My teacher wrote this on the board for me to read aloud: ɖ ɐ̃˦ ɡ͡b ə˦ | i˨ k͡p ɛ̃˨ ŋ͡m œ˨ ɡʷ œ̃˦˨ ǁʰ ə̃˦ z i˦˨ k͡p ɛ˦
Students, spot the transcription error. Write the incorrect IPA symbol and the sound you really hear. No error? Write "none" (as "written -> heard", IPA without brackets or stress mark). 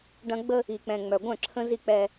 none